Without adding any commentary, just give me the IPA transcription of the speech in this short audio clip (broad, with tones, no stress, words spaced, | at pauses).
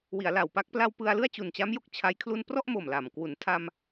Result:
wi˩˦a̯la˨˩wpa˦˥k̚ pla˧w pɯ˧a̯ lɯ˥˩a̯t͡ɕu˨˩nt͡ɕa˦˥mjo˦˥k̚ t͡ɕʰa˦˥j kʰlu˧nprɔ˥˩ʔmo˨˩m la˨˩m kwu˩˦ntʰa˧m